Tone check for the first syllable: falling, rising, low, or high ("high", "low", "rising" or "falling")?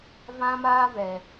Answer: high